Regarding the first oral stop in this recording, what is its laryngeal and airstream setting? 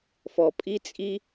ejective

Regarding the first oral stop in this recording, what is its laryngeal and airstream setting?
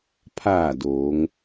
aspirated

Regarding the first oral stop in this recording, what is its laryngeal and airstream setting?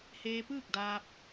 plain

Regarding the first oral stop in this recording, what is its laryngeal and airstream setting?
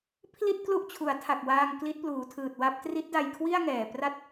aspirated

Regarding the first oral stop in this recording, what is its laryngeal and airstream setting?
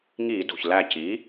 plain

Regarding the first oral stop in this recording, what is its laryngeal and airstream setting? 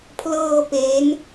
aspirated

